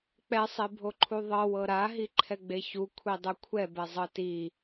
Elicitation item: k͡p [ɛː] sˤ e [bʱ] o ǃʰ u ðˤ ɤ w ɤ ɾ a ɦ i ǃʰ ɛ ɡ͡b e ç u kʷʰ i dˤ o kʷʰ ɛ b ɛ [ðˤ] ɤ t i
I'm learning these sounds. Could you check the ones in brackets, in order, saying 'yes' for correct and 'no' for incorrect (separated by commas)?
no, yes, no